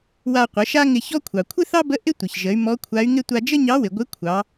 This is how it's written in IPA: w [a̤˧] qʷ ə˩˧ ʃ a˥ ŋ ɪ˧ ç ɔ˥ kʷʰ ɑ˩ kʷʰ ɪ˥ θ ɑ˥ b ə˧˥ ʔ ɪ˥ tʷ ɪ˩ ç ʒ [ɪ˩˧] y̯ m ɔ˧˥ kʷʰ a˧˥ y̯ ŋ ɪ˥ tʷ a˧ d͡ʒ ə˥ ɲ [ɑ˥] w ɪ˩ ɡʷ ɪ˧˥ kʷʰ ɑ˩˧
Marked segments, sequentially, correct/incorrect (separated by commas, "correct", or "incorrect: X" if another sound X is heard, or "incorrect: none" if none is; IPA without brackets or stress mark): incorrect: a˧, incorrect: ə˩˧, incorrect: ɑ˧˥